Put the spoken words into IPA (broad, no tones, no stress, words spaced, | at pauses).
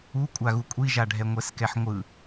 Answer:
ukʷʼaɣu kʷʼiʒaɖʱɛ ŋʷɛskɛħŋʷɯ